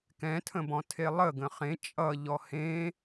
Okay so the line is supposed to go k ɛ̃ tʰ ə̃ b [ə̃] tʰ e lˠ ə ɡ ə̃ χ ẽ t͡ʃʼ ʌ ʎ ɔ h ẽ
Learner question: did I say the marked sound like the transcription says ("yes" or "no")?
no